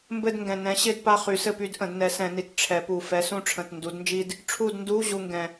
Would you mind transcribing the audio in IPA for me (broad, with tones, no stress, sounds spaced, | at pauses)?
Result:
m b ɘ˦˨ d ŋ ɡ ɛ̃˨˩ n ɛ̃˨˥ ɕ ɪ˧˥˧ d p a˦˨ χ y˨˩˦ s ɘ˦˨ p y˨˥ d ʔ ə̃˨˩˦ d n ɛ˨˥ s ɛ̃˨˩˦ n i˨˩ t ʈ͡ʂʰ ɛ˨˩˦ p u˨˩ f ɛ˨˥ s ũ˦˨ ʈ͡ʂʰ ə̃˨˩ t n d u˨˥ d n d͡ʒ i˥ d | ʈ͡ʂʰ u˦˨ d n d u˧˥˧ ʑ u˦˨ ŋ ɡ ɛ̃˨˩